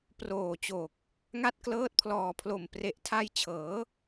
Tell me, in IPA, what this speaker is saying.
p r oː˨˩ t͡ɕ oː˨˩ k̚ | ŋ a˥˩ t̚ k l ɤː˦˥ t̚ pʰ l ɔː˨˩ pʰ l o˨˩ m p r e˨˩ ʔ tʰ a˧ j t͡ɕʰ ɤː˩˦

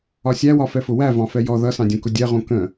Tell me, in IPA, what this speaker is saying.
ɒ sʲ æ w ɒ f ɛ f ʊ w æ v ɑ̃ f ɛ j ɔ ð ʌ s ɑ̃ dʲ ũ k ʊ dʲ ɛ ʁ ũ k ə̃

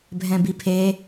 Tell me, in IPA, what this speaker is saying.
bʱ ɛ̃ b i pʰ e

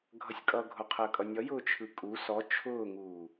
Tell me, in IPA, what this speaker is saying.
ɡʱ ʌ sʲ kʼ ʌ ɡʱ ʊ qʰ əː kʼ ʌ nʲ ʌ j ʊː t͡ʃʰ ɯ kʼ u s ɔ t͡ʃʰ ʊː ŋ uː

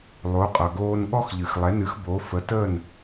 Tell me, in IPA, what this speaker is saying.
lˠ o˩˥ qʼ ʌ˩ ɡ oː˧ n ɠ ɔ˥ x ʎ ɨ˩ x lˠ ɛ˩˥ n ɨ˩˥ x b o˩˥ f ə˩˥ t ə˥˩ n

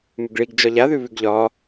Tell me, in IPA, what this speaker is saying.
m ʉ ɡ ɭ i ɡ d͡ʒ ɒ ʎ a ð ʉ β ʉ ɡ ʎ ɒ

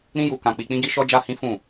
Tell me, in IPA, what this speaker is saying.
ɾ ĩ˦ j u˧ k ã˧ k͡p i˧ k͡p ĩ˦ ɡ i˦ ʃ ɔ˦ d͡ʒ a˦ h ĩ˦ f ũ˦˨

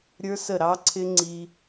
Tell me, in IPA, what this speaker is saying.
ɾʲ ə˞˦ s ə˦˨ ɾ ɑ˦ ǀʰ ɪ˦ ŋ͡ǀ i˧

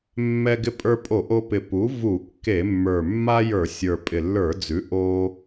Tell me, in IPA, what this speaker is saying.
mː ɛ˧ ɡ ɪ˧ pʼ ə˞˧ pʼ o˧˩˧ ʔ o˧ p ɪ˨˩ p u˩˥ v u˧˩˧ kː e˧˩˧ mː ə˞˨˩ mː a˥ j ə˞˧˩˧ sʲ ə˞˨˩ pʼ ɪ˨˩ lː ə˞˧˩˧ d͡z ʉ˩˥ ʔ o˧

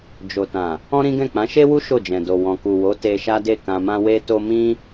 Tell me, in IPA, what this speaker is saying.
d͡ʒ o˨ t ã˨ | ɔ̃˦ ɾ ĩ˦ ɡ ɛ̃˦˨ k͡p ã˨˦ ʃ e˦ w u˦ ʃ o˦˨ d͡ʒ ɛ̃˨ d o˨ w ɔ̃˨ k u˨ w o˨˦ t e˧ ʃ a˦ d e˦˨ k ã˧ m ã˦ w e˦ t o˦ m ĩ˦

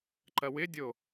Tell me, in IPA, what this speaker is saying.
ǃ ɐ w ɪ dʲ o

